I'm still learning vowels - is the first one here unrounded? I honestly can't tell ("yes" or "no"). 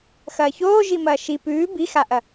yes